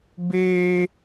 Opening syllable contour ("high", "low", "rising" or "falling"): high